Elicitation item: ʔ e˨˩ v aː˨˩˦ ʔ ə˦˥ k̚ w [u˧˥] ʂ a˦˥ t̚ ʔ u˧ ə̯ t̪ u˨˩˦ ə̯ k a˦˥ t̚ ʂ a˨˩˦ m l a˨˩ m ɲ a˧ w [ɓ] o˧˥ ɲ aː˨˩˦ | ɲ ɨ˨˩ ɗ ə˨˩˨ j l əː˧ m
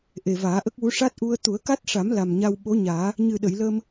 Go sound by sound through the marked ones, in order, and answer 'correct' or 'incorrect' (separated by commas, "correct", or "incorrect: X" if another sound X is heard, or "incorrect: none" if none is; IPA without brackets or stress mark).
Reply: correct, correct